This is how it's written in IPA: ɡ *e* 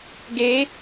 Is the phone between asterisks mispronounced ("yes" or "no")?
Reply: no